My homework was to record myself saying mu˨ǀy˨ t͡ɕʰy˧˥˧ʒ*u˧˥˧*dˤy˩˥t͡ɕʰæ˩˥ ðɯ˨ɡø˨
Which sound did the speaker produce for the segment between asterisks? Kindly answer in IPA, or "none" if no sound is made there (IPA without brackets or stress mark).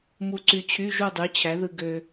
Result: u˥˨